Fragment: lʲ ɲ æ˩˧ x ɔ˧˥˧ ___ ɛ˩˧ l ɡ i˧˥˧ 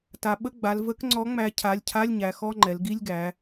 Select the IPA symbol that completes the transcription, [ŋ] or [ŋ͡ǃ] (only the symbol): ŋ͡ǃ